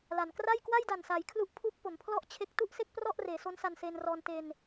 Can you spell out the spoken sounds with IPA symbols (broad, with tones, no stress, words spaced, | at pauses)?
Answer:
la˩˦n kra˥˩j kwa˥˩jda˨˩nsaː˩˦j kʰlu˦˥ʔpʰu˦˥k̚ po˩˦mpʰlɔ˥˩ʔt͡ɕʰe˦˥k̚ tu˥˩ʔse˥˩k̚ prɔ˥˩ʔreː˩˦so˦˥n sa˧nseː˧nrɔː˧n te˧n